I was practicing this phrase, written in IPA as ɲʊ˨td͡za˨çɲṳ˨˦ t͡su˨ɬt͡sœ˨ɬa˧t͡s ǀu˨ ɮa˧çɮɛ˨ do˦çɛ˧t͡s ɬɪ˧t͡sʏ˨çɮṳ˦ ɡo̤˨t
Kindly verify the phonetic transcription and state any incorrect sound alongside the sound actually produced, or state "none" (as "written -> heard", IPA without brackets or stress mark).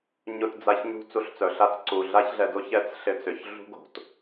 none